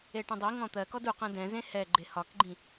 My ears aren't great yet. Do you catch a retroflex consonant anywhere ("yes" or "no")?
yes